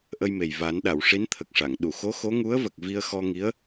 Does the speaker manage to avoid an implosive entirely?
no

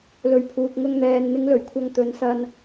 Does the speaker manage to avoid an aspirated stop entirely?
no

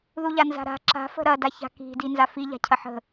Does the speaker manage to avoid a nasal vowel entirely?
yes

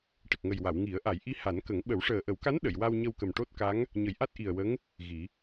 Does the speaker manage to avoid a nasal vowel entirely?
yes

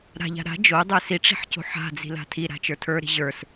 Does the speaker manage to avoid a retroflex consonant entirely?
no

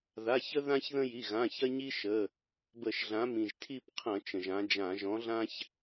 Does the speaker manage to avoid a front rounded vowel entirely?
yes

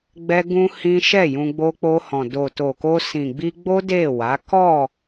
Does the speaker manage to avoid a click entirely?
yes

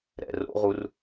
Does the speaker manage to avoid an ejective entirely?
yes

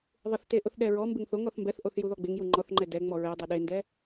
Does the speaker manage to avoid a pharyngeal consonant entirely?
yes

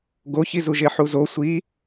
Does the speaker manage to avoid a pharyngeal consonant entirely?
no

